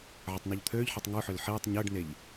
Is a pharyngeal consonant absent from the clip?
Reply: no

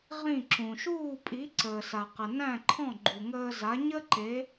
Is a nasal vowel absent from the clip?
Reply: no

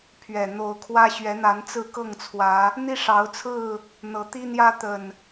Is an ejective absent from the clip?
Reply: yes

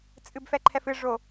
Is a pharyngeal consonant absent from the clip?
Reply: yes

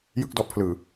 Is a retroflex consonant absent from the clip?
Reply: yes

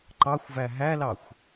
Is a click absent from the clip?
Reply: no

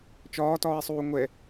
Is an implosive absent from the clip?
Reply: yes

